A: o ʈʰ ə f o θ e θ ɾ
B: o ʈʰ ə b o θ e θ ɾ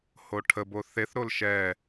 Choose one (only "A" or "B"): B